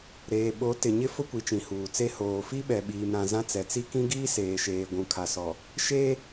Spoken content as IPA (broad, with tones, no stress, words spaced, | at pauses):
ɾeː˨ɓo˨˦ tɪ˨ɲɪ˦ fʊ˦ kʷi˨t͡ʃĩ˨ huː˨t͡se˦ hoː˨ fi˦ɓɛ˨ɓiː˨mɾã˨ zã˦t͡sɛ˨ t͡si˦kĩ˦ ɡiː˦ seː˨ʃeː˨ ɡʷũ˨kʰa˨sɔ˨ | ʃeː˦